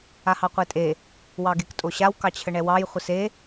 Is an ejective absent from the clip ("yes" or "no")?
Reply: no